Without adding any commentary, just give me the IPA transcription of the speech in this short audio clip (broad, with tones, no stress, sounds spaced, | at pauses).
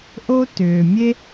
ʔ o˥ t ʏː˩ mʲ e˥